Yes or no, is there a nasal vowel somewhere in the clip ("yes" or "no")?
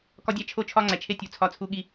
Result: no